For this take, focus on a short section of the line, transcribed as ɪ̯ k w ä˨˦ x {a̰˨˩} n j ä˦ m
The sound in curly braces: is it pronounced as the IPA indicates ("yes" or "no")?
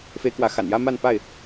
yes